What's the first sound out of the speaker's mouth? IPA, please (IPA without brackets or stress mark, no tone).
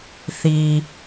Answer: θ